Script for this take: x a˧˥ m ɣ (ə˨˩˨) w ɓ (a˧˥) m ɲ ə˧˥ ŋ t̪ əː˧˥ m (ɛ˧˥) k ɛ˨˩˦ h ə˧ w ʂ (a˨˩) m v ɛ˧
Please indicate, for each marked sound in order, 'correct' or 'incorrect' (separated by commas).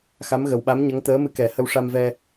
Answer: incorrect, correct, incorrect, incorrect